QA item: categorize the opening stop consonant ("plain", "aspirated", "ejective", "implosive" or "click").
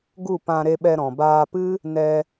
plain